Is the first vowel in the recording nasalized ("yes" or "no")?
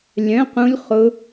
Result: yes